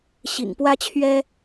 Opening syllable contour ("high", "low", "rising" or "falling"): low